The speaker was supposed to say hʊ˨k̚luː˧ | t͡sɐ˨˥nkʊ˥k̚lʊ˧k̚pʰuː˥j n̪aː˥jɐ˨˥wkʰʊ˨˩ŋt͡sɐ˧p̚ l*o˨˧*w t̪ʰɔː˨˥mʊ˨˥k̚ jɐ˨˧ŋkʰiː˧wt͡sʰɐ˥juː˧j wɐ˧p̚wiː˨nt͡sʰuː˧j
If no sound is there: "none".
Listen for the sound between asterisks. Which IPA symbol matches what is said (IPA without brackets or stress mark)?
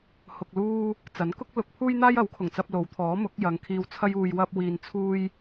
o˨˧